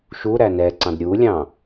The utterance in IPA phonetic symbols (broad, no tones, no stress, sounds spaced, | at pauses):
ʃ u ɾ æ n ɛ ǀ ɑ̃ d ɾʲ u lʲ ɑ̃